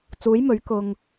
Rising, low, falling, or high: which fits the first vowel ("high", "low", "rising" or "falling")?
rising